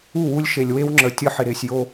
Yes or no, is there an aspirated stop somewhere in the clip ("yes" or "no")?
no